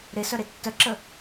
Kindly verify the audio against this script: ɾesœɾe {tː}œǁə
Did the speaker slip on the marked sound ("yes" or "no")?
no